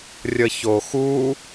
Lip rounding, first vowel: unrounded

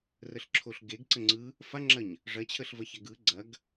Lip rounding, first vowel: unrounded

